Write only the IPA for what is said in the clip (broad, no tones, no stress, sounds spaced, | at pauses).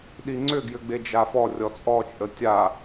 ɗ i ŋ͡ǀ ʏ ɡ j ʏ ɡ͡b e d͡ʒ a f ɔ rʲ ɔ t͡sʼ ɔ t͡ʃʼ ə tʲ a